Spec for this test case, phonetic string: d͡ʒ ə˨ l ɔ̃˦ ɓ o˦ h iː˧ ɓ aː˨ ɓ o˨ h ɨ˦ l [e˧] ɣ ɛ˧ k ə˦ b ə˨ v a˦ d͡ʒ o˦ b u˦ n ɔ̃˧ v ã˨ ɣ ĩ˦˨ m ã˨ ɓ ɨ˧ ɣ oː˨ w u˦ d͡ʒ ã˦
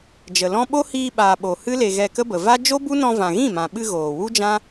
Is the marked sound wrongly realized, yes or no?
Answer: no